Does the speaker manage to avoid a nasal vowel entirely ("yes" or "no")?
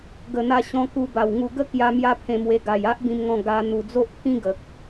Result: no